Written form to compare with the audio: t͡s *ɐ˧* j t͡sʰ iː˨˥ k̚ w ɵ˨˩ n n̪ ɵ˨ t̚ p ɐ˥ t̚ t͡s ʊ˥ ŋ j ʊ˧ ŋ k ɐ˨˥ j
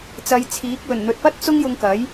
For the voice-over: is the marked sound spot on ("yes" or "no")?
no